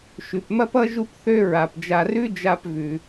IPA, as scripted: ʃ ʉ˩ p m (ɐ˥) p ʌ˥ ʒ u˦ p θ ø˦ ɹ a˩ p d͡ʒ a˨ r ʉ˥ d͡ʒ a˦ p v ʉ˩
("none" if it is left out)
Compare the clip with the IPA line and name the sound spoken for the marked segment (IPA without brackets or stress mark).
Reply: ɐ˥